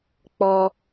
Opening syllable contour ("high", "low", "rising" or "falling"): high